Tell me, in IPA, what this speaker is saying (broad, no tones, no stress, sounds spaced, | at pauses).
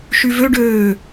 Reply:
ʃ y v ø ɖ øː